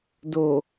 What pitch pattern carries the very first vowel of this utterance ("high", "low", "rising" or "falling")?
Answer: low